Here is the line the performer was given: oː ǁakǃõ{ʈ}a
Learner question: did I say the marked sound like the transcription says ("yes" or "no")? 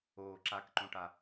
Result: yes